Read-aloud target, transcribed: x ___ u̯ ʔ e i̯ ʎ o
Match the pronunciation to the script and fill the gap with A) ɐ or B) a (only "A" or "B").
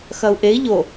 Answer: A